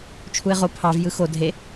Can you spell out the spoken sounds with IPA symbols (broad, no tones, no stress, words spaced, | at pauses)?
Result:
t͡ʃʰuɪ̯ʁo pʰɑv jɯxo dʱe